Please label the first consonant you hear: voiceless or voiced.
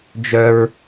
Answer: voiced